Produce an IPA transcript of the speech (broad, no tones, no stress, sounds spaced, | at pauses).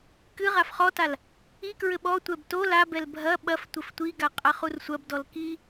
k ɨ ʁ a f χ ɔ t a l | i k ɹ ɘ ɓ ɔ tʷ ɛ b t o l a b ɛ l bʱ ɐ ɓ ɐ f tʷ ɘ f tʷ i ɡ a qʼ a χ u r sʷ ɐ b d ɔ l k i